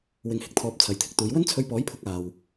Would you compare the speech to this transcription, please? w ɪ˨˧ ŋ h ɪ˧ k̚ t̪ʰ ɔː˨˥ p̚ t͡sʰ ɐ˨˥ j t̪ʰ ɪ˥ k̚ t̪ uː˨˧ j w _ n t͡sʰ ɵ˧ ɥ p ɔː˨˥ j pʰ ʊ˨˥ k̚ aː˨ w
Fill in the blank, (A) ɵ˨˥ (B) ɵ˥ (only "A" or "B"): B